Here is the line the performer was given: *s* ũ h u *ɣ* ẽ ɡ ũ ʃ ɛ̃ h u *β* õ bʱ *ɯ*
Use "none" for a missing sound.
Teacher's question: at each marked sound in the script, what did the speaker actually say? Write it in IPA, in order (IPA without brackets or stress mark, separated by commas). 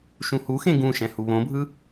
ʃ, x, β, ɯ